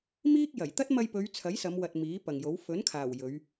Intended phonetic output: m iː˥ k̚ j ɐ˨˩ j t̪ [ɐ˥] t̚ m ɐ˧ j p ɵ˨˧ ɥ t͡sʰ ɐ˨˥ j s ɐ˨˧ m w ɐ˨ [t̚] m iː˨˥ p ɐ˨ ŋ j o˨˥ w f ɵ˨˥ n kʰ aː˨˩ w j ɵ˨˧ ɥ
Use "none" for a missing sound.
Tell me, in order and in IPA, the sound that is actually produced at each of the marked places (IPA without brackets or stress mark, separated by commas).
ɐ˥, t̚